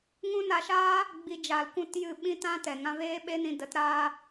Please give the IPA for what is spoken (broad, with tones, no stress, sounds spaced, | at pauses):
ŋ ũ˦ n a˧ ʃ aː˦ | ɡ͡b i˧ d͡ʒ a˧ l kʷ ũ˦ t j ɨ˦˨ ɓ ĩ˦ t ã˦ t ɛ˨ ŋ ã˧ v eː˦ ɓ e˦ n ĩ˧ d ə˨˦ t ɾ aː˦